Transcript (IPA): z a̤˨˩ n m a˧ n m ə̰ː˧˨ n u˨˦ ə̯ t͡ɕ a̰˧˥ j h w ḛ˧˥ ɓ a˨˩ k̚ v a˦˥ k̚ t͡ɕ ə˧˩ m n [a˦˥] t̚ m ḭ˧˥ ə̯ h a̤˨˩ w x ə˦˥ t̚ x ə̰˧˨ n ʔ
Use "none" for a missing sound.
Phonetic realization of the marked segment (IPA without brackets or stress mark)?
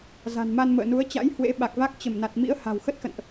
a˨˩